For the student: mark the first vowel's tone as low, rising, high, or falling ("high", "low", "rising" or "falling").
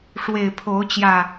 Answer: low